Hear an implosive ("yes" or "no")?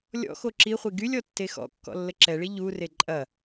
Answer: no